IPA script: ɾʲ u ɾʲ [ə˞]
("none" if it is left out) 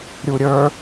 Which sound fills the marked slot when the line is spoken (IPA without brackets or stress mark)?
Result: ə˞